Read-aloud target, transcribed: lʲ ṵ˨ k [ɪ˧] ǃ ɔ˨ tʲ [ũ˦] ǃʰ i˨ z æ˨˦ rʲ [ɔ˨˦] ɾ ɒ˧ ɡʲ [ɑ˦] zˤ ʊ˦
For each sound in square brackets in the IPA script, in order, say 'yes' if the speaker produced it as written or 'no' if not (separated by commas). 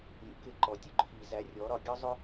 yes, no, yes, no